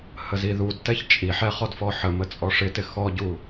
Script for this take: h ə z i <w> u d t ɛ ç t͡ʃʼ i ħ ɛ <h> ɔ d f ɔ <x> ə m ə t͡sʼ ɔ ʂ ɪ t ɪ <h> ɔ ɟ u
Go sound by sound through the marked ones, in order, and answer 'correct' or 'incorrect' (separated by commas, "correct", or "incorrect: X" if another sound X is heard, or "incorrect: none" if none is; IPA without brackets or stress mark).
incorrect: ð, incorrect: χ, incorrect: ħ, incorrect: x